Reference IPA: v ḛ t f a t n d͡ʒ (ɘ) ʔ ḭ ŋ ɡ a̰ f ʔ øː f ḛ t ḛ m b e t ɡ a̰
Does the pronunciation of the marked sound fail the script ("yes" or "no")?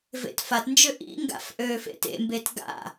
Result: yes